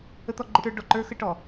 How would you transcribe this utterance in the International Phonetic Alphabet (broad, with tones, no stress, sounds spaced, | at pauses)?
ə˦ t̪ ɔ˦ ɡ͡ǃ ə˦ ʈ ə˞˦ ɖ ɔ˨ ǃ ə˞˦ x ə˦ ʈ ɔ˨